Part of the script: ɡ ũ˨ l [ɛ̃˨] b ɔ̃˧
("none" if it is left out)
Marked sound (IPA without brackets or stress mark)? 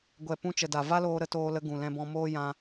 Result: ɛ̃˧